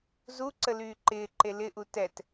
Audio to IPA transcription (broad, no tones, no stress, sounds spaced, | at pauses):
z u ǀ ə l yː ǃ ɪː ǃ e l ɪ ʔ u t ɛ t